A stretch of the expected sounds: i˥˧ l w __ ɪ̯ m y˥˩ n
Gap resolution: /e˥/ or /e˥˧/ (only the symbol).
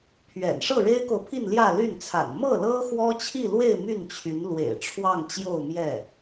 e˥˧